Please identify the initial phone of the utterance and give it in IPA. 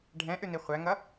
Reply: ɖʱ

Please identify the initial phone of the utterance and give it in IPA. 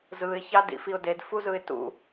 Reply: z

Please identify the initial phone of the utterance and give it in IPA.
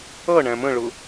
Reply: ʌ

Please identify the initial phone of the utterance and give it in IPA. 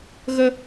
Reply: ɣ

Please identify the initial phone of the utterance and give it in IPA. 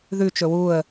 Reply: ð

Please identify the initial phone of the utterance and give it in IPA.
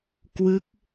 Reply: k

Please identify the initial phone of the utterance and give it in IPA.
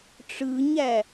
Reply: ʈ͡ʂ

